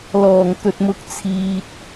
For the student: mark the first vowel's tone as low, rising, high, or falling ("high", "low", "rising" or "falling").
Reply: low